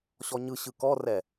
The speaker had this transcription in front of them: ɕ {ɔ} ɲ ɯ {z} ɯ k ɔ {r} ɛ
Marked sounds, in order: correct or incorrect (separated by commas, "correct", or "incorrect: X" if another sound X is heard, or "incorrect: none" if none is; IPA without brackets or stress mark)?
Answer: correct, incorrect: ɕ, correct